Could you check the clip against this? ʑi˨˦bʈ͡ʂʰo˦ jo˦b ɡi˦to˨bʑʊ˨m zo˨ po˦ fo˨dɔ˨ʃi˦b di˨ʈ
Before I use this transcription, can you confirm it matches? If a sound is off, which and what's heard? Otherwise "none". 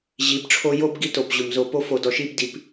ʈ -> p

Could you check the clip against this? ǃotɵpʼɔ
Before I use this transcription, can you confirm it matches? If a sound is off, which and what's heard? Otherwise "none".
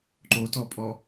ɵ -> ɔ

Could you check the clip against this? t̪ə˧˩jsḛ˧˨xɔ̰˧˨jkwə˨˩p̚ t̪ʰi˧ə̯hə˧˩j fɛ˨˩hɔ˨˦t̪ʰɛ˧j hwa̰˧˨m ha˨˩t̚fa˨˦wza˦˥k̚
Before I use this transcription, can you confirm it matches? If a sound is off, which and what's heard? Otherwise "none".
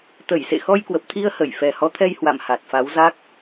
ɔ̰˧˨ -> ɔ˧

